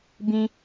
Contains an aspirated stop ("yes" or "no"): no